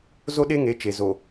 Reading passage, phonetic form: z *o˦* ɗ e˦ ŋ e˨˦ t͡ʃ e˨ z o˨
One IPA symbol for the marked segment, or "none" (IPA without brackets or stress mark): o˦